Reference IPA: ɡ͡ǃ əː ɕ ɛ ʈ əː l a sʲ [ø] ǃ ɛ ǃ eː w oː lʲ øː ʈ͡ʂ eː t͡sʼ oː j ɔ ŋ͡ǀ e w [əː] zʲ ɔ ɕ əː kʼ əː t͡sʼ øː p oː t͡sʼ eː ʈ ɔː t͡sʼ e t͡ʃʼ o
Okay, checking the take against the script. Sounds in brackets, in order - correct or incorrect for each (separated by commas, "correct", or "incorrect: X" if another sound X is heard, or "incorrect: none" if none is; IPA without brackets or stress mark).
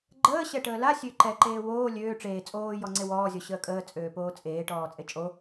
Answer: correct, incorrect: ɔː